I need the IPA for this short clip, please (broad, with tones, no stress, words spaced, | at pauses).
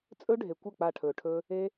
t͡sʼɵ˦ɖʱe˨kʷə˦˨ k͡pa˦˨ʈʰɵː˨ʈʰɵː˦ | e˦